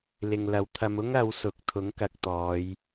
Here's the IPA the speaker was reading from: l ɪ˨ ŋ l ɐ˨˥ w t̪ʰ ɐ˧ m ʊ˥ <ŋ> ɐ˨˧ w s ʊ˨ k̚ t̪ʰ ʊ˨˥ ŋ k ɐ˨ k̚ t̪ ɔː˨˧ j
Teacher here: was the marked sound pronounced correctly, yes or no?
yes